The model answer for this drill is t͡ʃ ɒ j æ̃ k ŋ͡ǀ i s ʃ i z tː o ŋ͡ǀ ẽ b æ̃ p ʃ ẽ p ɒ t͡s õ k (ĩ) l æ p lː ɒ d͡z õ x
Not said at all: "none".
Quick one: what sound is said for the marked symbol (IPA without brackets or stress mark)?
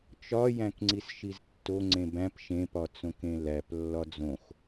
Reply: ẽ